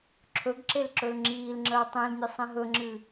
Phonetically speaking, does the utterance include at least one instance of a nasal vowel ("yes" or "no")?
yes